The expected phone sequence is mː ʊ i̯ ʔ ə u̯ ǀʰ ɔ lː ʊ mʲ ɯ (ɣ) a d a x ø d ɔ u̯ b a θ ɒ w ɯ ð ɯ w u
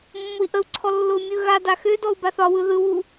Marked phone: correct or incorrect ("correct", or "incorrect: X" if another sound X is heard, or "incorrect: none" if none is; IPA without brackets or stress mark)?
correct